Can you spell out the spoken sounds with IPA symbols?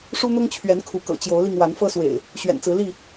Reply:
ʂ u˦ n̪ ʊ˦ ŋ t͡ɕʰ ɥ ɛ˨˦ n kʰ u˨˦ k ɤ̰˨˩ t͡ɕ j o˨˦ ʊ̯ l i˧ ŋ w a˨˦ n f ɤ˦ s w ḛ˨˩ ɪ̯ | ɕ ɥ ɛ̰˨˩ n t͡s ɹ̩˨˦ l i˥˨

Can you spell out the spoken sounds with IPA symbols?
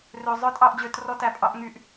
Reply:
r ø˨ zˤ œ˧ tʼ ɑ˦˨ ʔ d͡ʑ ø˧ t r ɔ˦ t æ˧ pʼ ɑ˦ ʔ ŋ y˦ ʔ

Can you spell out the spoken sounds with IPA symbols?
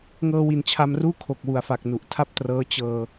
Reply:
ŋ ɤː˧ w i˨˩ n t͡ɕʰ a˧ m r uː˥˩ kʰ o˨˩ k̚ w u˨˩ a̯ f a˨˩ k̚ n u˨˩ ʔ tʰ a˥˩ p̚ t r ɤː˦˥ t͡ɕ ɤː˧

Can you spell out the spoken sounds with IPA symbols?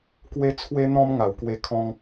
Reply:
k w e˦ t͡sʰ w e˦ n̪ ɔ̃˦ m ŋ a˨˩ w k w e˧ kʰ ɔ̃˧ ŋ

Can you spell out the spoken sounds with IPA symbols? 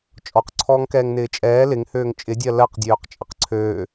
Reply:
t͡ʃʼ ɔ q ǀʰ ɔː ŋ k ɛː ŋ n ɪː t͡ʃʼ ɛː l ɪ ŋ h øː ŋ t͡ʃʼ ɪ dʲ ɜ l ɜ q dʲ øː q t͡ʃʼ ɐ q ǀʰ øː

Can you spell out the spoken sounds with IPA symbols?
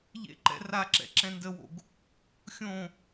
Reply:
ʎ ḛ ǃ ɛ̰ r a ǁ ɛ̰ ǁ ɛ̃ n d ə w o̰ ɡ | xʲ õ

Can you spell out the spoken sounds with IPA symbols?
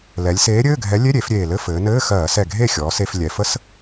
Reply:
l ɛ˩˧ lʲ s eː˨˥ ɾʲ ɘː˧˥˧ ɡʱ ɛ˨˥ lʲ e˧˥˧ ɾʲ e˧˩˧ f ɾʲ eː˨˩ l ɘ˧˥˧ f ɘː˩˧ n ɘː˧˥˧ x ɜː˧˩˧ s ɛ˨˩ ɡʱ e˥˩ xʲ ɔː˩˧ s e˩˧ f lʲ ɛ˩˧ f ə˧˥˧ s

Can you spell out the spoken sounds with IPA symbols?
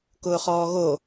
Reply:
k ʊː χ ɔː ɣ o

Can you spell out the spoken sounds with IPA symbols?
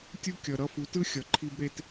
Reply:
tʲ u˥ kʲ ʌ˩ ɾ ʌ˥˩ f u˩˥ t ɯ˥ xʲ ʌ˩ ǃʰ i˧ b ɾ e˧ t

